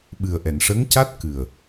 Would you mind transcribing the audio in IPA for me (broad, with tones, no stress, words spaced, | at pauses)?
ɓɨ˨˩ə̯ʔɛ˨˩˨nʂə˧˥ŋca˦˥t̚ kɨ˨˩ə̯